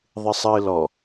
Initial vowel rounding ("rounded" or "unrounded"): unrounded